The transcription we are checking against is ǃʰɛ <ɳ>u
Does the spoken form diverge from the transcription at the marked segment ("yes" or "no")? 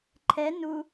yes